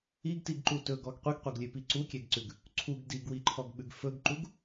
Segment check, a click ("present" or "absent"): present